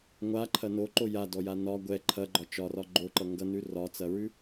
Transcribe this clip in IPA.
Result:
ŋʷaǃʰɐ noǃo jadɔja nɒ ɡʷɛ ǃʰɐɡ͡ǃɒ t͡ʃɒrɒ ɡ͡ǃoǃʌ ŋɡʌnʉ rɒt͡sɐɹʉ

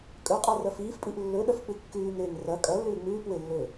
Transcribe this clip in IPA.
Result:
kʼɵqʼa rɐfiːfpʼiʔ lːɵɗɐf k͡pɨkːʉːŋɾeːŋ rɐ kʼɐ lːʉːŋ͡mʉːpwe lːɵ

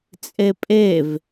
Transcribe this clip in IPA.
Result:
t͡sʼepʼev

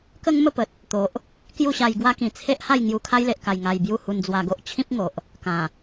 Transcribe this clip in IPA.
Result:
kə˦ŋmə˥˧pə˨t̚ | t̪o˨ʔ | kju˥˧ɕa˧jɡwa˦kĩ˨˩ t͡sʰe˦ʔha˥˧j ŋju˧kʰa˦jle˨ʔka˨˩j ŋa˧j bju˥˧hu˧nd͡zwa˧ɡo˦ʔ t͡ɕʰĩ˦p̚ŋo˨ʔ | kã˨˩

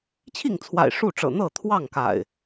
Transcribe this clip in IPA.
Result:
t͡ɕʰi˥˨ŋt͡sʰwa̰˨˩ɪ̯ ʂu˥˨ʈ͡ʂɤ̰˨˩ n̪ɤ˥˨t̪ʰwɑ˥˨ŋka̰˨˩ɪ̯

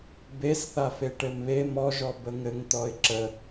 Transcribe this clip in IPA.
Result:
besθafe ʈɘmβe mɔʒɔ bəŋɘŋ t̪ɔɪ̯ǁə

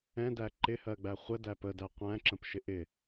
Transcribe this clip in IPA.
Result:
ɛ̃dæ ǃɪhɜɡ͡bæ χʷə dæpədæ qʷæ̃ǁə̃pʃɪ ʔɪ

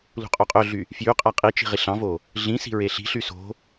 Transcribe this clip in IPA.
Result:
lṳqʼoqʼøɮy | fjyqʼæ qʼi t͡ʃi̤ʁiɬɑ̃vo | ɮĩ si̤ɹeɬi̤ɬy so̤

